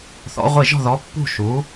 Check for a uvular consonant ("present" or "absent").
present